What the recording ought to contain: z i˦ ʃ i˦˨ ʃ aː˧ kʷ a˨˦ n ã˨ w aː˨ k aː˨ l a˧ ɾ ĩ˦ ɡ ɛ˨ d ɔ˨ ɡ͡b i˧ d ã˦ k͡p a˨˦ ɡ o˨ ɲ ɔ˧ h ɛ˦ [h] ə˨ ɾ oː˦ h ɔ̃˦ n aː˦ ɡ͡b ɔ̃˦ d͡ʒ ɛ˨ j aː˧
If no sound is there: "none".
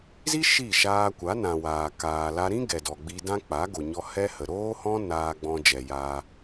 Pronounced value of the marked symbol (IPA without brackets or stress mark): h